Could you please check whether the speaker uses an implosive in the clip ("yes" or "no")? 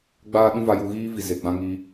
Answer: yes